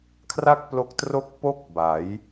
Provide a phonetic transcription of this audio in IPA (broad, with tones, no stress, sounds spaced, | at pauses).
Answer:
kʰ r a˥˩ k̚ p l o˦˥ k̚ t r o˥˩ k̚ p o˥˩ k̚ b a˩˦ j